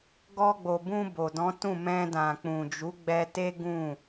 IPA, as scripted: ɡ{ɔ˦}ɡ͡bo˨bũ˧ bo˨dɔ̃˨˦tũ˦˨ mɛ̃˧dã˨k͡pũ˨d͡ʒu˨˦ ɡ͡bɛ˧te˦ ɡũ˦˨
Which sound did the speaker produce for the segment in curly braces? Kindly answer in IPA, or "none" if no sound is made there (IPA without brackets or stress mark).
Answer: ɔ˧